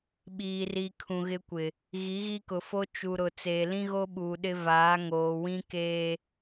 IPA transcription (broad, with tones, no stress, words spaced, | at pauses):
ɓiː˨ri˨ kʰũ˨ɣɪ˦kʷɪ˨ | ɣi˨˦ɣi˦kʊ˨fo˦ t͡ʃu˨ ɾʊ˨t͡seː˨ lĩ˦ɣo˦ ɓuː˨ɗɪ˦ vaː˨˦ŋoː˨wĩ˦keː˦